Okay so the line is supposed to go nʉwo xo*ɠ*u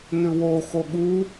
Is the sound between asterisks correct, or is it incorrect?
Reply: correct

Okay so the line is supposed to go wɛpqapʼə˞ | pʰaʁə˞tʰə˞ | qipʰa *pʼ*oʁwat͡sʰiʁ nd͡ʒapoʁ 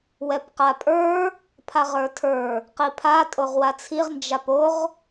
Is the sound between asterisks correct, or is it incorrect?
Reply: incorrect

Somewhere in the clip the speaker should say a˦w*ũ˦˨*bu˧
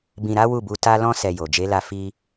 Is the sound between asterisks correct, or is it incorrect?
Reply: incorrect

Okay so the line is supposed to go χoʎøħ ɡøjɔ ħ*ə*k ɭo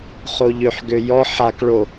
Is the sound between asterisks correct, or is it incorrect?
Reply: incorrect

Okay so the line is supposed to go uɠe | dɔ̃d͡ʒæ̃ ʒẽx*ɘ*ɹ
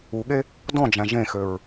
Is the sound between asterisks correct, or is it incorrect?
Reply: incorrect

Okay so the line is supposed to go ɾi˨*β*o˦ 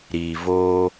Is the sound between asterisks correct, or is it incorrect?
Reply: incorrect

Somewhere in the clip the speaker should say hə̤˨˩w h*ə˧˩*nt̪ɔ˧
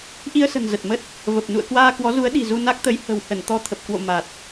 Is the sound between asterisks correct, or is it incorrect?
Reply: correct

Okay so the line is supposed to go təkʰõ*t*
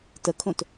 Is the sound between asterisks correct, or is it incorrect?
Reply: correct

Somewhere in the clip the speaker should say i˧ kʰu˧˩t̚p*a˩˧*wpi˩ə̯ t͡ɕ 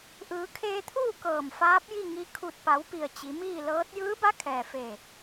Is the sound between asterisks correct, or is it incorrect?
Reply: correct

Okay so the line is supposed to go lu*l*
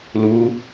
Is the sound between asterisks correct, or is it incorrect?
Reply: incorrect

